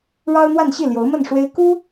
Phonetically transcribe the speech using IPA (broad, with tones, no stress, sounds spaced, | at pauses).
ɻ ɑ˥ ʊ̯ n̪ w a˥˧ n ɕ i˥˩ l j o˧˥ ʊ̯ m ə˥˩ n ʂ w e˥ ɪ̯ k u˥